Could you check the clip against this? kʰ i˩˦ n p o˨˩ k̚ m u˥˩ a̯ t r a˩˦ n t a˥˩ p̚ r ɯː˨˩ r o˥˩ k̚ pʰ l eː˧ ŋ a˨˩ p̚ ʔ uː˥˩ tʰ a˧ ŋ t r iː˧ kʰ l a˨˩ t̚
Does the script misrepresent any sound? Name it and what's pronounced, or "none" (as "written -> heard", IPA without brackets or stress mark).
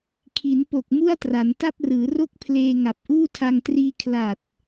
ɯː˨˩ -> ɯː˩˦